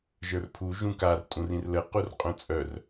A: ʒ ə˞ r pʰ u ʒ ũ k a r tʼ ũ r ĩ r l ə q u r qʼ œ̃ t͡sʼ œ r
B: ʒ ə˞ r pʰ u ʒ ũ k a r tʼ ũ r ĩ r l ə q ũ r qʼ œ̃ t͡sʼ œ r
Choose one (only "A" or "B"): A